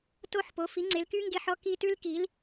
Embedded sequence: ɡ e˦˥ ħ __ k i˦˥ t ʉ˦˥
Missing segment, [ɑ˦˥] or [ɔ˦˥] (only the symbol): ɔ˦˥